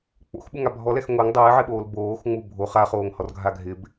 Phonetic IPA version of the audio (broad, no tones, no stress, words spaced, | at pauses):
k͡po̰xɓuŋa bʱɔlɛx ŋʷeŋ dˤɪːʕɪɓoːl boːxŋ͡mu bʱo χaχoːŋhɔrɡʱa ɡʱɪb